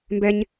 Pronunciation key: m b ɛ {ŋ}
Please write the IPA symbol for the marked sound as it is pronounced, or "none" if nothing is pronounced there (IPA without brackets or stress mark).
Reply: ɲ